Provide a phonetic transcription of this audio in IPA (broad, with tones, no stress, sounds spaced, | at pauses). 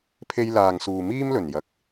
pʰ e˧ j l aː˨ ŋ s uː˨ m iː˥ m l ɵ˨˩ n j ɐ˨ k̚